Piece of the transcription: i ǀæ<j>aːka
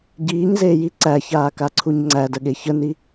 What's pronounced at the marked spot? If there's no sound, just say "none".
ç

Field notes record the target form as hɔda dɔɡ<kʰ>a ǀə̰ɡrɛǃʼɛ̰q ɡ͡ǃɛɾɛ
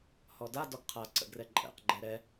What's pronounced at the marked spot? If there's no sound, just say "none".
qʰ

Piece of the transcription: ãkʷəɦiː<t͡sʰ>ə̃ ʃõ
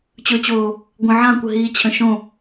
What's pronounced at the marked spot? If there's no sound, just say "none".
t͡ɕʰ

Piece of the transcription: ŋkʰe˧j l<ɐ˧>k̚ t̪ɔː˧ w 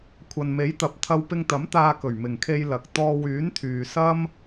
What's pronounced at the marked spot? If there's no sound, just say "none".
ɐ˨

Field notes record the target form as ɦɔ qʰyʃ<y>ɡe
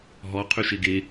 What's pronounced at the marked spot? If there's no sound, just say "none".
e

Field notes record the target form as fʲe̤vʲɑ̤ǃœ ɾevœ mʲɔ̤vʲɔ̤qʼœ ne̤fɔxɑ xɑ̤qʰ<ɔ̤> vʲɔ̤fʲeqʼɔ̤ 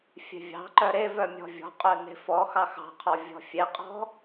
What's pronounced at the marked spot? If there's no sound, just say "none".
ɔ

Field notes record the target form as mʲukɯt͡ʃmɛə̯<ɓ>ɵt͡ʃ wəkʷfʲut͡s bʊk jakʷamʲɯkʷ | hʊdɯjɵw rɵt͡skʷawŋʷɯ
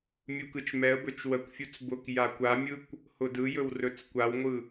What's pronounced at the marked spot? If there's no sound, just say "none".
b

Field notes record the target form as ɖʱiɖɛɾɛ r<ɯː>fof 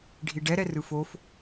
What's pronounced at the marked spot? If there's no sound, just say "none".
ɯ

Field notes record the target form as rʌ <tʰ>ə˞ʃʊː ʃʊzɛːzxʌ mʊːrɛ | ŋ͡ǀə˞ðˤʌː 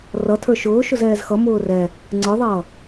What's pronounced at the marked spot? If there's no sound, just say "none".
tʰ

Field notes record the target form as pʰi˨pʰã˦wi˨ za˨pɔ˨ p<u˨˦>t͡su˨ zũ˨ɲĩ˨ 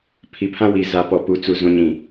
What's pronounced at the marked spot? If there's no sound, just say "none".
u˨˦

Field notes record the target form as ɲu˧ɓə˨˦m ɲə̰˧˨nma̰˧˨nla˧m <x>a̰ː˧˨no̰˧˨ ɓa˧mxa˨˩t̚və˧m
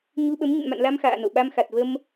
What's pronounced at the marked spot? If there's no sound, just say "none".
x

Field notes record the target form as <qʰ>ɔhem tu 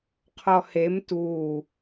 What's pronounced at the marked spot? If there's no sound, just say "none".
qʰ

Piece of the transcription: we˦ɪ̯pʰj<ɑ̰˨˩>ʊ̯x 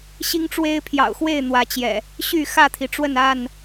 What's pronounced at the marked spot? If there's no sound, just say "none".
ɑ̰˨˩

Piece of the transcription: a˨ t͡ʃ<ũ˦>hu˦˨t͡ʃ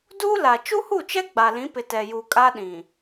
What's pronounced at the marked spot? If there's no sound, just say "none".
u˦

